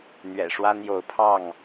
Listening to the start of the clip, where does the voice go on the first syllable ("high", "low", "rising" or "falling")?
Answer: low